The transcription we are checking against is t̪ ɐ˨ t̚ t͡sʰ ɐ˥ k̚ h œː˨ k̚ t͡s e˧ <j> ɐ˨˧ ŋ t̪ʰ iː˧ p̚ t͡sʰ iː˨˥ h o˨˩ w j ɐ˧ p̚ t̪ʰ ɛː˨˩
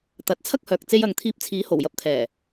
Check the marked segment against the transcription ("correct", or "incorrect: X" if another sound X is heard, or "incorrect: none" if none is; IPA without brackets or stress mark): correct